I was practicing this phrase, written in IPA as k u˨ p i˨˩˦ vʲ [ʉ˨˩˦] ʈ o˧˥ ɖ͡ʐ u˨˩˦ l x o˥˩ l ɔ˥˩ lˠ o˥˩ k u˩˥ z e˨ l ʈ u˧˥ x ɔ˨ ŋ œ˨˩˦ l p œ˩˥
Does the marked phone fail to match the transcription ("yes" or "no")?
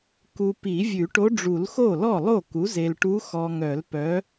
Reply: no